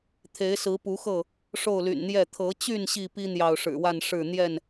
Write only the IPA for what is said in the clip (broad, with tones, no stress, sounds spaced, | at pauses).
t̪ʰ e˨˦ ɪ̯ s ɹ̩˨˦ p u˨˦ x ɤ˥˨ | ʂ o˥˨ ʊ̯ l y̰˨˩ n n̪ j ɛ˥˨ t̪ʰ ɤ˨˦ t͡ɕ y˥˨ n ɕ i˥˨ p i˦ n̪ j ɑ˨ ʊ̯ ʂ ɻ̩˨˩ w a˥˨ n ʂ ɻ̩˥˨ n̪ j ɛ˥˨ n